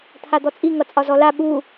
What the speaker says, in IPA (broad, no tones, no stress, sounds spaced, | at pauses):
t̪ʰ a d̪ ɔ t͡sʼ i ŋ ʌ t͡sʼ ɒ z ɔ l a ɓ u